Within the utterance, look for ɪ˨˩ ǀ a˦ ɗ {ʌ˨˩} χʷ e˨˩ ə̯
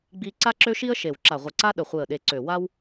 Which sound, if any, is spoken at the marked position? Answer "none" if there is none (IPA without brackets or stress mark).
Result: ə˨˩